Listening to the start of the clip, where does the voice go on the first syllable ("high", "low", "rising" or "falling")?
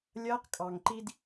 high